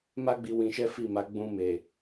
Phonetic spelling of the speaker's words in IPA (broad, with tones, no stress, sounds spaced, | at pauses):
m a˦ ɡ͡b i˧ w ĩ˧ ʃ ɛ˦ f i˦˨ m a˨˦ ɡ͡b ũ˧ m e˨